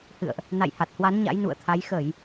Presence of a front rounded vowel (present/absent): absent